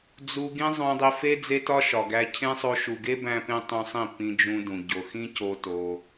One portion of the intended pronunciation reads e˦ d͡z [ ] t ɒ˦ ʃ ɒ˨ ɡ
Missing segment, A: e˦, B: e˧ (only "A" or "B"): A